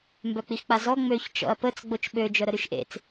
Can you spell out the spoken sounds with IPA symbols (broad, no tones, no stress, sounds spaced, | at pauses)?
m b œ k͡p i x k͡p a z ɔ ŋ͡m ø ç t͡ʃ ɔ̰ ɐ̯ p ə t͡s ɡ͡b o t͡ʃ ɓ ø d͡ʒ œ ɾ ə ɾ y ʃ ʔ ḛ t͡s